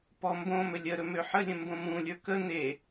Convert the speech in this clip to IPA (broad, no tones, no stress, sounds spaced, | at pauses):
p ɔ m b õ m ɵ lʲ ə ɾ ɵ m ø ħ ə lʲ ə̃ m b õ m ũ lʲ ə˞ k ə n e